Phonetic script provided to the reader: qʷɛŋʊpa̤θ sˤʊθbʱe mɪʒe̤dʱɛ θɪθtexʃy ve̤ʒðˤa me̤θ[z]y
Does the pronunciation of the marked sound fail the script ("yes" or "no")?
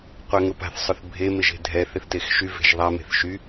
yes